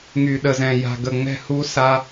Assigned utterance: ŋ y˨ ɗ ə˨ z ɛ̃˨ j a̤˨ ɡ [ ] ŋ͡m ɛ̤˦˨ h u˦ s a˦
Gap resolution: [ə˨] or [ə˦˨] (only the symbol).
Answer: ə˨